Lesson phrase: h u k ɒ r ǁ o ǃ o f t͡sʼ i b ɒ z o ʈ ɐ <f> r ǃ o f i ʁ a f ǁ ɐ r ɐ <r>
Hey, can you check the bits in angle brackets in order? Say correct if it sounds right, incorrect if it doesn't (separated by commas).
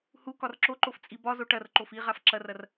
incorrect, correct